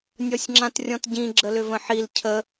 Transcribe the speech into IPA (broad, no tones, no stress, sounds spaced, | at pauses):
nʲ ɔ sʲ ŋ͡ǁ ã t rʲ ɔ̃ t ɟ ĩ ɡ͡ǁ ə l ʏ v ə̃ ħ i l cʰ ə